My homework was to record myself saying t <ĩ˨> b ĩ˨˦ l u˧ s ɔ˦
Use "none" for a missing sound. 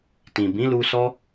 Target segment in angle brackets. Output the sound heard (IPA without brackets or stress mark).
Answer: ĩ˨